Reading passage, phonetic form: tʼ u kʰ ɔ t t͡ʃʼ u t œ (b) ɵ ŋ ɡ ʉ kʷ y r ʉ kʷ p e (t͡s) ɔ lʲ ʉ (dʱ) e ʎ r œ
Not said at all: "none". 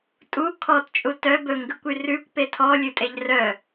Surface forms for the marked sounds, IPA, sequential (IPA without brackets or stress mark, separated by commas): b, tʰ, tʼ